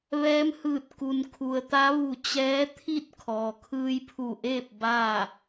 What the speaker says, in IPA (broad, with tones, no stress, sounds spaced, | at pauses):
ʋ ɛː˧˥ m h ɯː˧˩ t̚ k u˩ n kʰ u˩ ə̯ t̪ a˧˥ ʋ u˧˩ t͡ɕ ɛː˧˥ t̪ʰ i˥˨ t̚ kʰ ɔː˩ kʰ ɯː˧ j pʰ u˧˩ ʔ eː˥˨ p̚ b aː˥˨